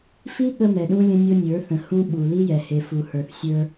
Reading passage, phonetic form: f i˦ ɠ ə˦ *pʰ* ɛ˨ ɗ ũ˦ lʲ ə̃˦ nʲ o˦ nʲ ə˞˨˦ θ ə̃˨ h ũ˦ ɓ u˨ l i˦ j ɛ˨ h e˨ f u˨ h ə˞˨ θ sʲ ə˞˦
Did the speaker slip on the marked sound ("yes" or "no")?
yes